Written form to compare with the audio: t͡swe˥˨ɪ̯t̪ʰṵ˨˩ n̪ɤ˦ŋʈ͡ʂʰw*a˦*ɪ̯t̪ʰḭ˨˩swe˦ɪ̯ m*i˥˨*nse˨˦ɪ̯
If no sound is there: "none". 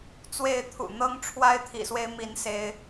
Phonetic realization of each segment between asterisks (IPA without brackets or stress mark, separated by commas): a˦, i˨˦